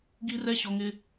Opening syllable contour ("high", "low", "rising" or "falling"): high